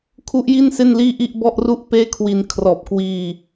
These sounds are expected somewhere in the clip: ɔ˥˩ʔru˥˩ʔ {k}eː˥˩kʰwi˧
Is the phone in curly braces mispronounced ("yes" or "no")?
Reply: yes